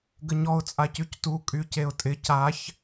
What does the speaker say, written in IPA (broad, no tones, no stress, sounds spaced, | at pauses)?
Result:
ɡ ə ɲ ɔ ʊ̯ t͡sʼ a c y c t u kʼ y c e ʊ̯ tʼ ɪ c a ç